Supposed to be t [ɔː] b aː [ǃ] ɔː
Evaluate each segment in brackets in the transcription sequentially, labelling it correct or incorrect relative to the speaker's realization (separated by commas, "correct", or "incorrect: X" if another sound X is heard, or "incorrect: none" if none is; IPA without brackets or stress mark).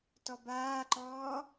incorrect: ɔ, correct